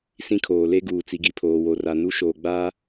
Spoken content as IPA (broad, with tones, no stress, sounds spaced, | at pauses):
s ĩ˦ kʰ oː˨ l e˦ ɡ uː˨ t͡s i˨ ɡ i˨ pʰ oː˨ w o˨ r a˨ n u˦ ʃ oː˨ ɡ͡b aː˦